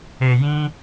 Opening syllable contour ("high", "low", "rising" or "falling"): low